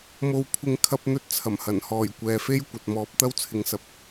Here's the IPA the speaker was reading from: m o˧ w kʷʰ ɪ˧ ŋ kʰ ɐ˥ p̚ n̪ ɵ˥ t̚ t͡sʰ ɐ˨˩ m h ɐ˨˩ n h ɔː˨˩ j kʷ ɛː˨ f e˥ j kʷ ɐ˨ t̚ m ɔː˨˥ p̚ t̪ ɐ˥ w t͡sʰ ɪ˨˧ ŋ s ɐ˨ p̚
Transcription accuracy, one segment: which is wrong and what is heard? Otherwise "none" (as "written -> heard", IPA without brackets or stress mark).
none